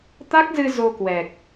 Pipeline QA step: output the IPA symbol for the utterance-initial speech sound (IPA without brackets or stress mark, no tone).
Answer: t̪